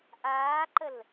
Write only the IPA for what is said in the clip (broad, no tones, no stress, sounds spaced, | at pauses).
ʔ aː ǃ ə l